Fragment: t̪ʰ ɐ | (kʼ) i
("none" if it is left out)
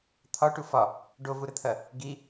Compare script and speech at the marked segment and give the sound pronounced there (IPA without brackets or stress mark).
ɡ